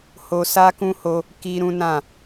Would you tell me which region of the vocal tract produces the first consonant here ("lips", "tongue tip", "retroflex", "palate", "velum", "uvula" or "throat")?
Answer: throat